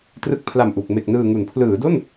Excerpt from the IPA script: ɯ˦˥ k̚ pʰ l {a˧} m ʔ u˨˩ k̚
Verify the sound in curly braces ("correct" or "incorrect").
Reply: incorrect